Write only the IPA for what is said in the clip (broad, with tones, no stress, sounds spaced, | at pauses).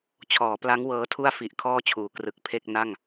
t͡ɕʰ ɔː˩˦ p l a˦˥ ŋ w ɤː˦˥ tʰ u˥˩ a̯ f i˨˩ ʔ kʰ ɔː˥˩ t͡ɕʰ uː˩˦ k r ɯ˨˩ k̚ pʰ e˥˩ k̚ n a˥˩ ŋ